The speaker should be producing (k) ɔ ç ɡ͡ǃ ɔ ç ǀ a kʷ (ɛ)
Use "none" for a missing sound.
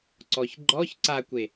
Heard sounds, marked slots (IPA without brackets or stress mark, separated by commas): ǀ, e